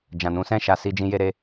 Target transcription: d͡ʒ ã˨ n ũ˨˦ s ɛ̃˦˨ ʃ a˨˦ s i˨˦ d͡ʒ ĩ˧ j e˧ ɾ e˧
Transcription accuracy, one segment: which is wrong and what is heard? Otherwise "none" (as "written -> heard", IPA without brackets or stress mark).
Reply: i˨˦ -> i˧